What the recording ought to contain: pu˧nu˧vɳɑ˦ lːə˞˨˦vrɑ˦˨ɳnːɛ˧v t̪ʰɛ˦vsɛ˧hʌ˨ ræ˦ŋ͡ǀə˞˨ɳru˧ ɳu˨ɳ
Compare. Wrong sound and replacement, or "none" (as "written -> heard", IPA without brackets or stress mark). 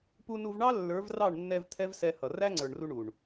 none